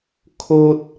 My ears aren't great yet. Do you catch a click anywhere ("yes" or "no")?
no